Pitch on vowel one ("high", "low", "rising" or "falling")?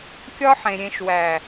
high